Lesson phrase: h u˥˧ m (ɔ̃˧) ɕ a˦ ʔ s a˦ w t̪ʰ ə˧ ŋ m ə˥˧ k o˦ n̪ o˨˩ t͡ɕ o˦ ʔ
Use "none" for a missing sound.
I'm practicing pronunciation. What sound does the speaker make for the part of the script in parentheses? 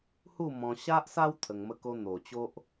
ɔ̃˧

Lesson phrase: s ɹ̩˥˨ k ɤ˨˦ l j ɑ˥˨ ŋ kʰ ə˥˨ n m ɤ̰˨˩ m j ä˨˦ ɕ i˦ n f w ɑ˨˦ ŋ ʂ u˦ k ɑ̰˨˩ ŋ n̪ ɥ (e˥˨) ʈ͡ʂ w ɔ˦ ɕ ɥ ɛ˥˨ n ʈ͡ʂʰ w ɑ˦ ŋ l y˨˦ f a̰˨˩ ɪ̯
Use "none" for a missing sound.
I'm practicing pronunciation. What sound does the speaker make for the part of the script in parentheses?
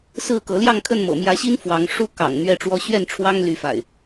ɛ˥˨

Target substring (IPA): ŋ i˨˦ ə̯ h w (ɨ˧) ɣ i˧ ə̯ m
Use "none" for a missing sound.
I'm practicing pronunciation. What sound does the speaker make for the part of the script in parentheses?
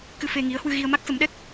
ɨ˧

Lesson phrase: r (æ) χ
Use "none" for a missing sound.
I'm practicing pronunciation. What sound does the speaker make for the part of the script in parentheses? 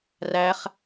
æ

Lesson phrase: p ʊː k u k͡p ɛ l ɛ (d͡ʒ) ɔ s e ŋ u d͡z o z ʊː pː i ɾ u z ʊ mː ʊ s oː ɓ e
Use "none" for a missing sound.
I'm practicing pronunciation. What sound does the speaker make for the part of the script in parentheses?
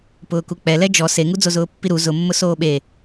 d͡ʒ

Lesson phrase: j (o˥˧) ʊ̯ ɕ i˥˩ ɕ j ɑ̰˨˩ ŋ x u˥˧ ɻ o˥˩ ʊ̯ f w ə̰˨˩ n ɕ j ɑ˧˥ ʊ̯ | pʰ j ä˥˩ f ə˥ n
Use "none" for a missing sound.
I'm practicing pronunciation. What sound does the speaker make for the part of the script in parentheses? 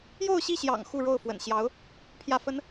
o˥˧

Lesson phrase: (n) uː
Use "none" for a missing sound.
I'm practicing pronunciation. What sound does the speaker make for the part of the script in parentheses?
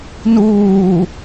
n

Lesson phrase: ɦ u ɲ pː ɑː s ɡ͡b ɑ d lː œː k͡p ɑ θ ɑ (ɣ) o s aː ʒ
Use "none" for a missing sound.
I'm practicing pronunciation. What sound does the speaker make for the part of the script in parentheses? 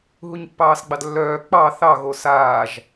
ɣ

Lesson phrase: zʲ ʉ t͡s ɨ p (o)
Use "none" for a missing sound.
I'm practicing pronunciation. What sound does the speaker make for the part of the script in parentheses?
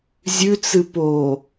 o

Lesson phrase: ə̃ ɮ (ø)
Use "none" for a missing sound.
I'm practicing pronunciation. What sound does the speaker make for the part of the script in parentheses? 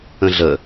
ə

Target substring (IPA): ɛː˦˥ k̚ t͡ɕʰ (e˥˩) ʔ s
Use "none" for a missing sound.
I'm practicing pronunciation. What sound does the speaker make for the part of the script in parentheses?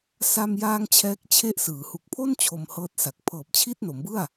e˥˩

